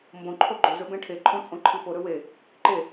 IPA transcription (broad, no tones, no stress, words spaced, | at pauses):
mbõ ǃʰoɡ͡ǃɵzɵ bẽʈʰeǃʰõ t͡sʼõǃʰipoɾɵ we | ǃe